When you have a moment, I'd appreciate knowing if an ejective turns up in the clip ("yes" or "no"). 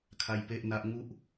no